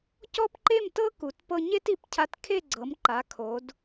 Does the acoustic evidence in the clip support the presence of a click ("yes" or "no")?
yes